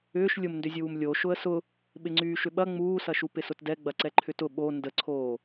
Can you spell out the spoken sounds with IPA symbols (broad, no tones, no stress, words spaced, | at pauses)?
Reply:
ʏːʃ lʲʊmndʏzʲuːm lʲo ʃʊə̯sʊ | ɓɪŋ͡ǀyːʃʏɓɐ ŋ͡muːsɐʃu pɪsʊtdɛ ɡ͡bɐǀɛǃʰʏtʊ ɓo ndəǀʰoː